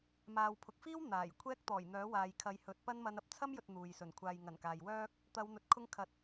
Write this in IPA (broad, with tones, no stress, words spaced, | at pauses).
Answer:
maː˨wpʰʊ˨k̚fiː˥w n̪aː˨˩jkʷʰɛː˥k̚ t̪ɔː˨˩jn̪œː˨˥waː˨jkʰɐ˨˧j hɵ˨˥t̚pɐ˥nmɐ˧nɐ˨p̚ t͡sʰɐ˥mjɵ˨t̚ n̪uː˨jsɵ˨˩n kʷʰaː˨jŋɐ˨˩nkaː˨jwœː˥k̚ | t̪ɐ˨˧wn̪ɵ˨˥t̚ kʰʊ˧ŋkʰɐ˨t̚